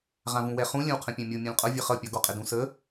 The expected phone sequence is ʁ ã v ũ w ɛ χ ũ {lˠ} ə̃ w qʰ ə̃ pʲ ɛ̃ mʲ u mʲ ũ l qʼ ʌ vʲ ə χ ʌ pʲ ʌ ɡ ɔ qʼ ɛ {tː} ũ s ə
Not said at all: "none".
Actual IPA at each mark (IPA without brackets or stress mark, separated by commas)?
lʲ, d